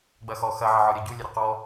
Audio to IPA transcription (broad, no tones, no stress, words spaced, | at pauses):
ɡ͡bɐxɔ xɐ ʕəʕɔɾʲɐɟu lʲɐɾʲəqɔ